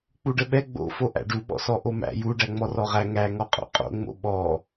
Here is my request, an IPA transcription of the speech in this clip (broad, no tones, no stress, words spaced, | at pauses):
k͡puɖəɓɛ ɡ͡bo̰fo ʔæ̰ɖuɓɔ̰sɔ ʔomæ̰ juɖæŋ͡mɔ rɔʁæ ŋæŋɔ qʼo̰qʼo̰ŋ͡mo̰ ɓɔ